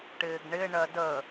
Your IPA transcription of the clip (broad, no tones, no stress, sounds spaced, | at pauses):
ʈ ɪː ɡ ɳ ɪ ɳ ɜ d ə